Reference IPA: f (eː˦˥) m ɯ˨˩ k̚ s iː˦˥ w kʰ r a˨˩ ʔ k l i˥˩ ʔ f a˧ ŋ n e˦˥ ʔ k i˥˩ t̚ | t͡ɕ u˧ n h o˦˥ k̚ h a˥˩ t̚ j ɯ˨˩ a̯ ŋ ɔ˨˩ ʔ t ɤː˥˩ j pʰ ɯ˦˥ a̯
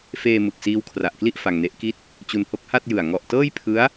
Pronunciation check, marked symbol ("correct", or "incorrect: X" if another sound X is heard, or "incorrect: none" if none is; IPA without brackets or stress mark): incorrect: eː˧